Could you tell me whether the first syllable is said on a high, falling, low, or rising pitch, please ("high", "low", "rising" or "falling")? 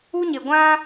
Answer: high